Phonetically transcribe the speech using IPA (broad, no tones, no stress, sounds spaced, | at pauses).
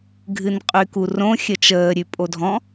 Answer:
ɡʱ ɨ n qʼ y k u r õ xʲ ə t͡ʃ əː ɾʲ ʉ pʼ o dʱ ɔ̃